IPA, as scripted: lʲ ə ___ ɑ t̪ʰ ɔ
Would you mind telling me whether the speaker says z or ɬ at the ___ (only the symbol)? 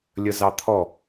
z